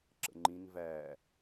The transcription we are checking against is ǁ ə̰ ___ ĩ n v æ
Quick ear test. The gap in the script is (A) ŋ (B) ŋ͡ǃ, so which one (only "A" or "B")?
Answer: B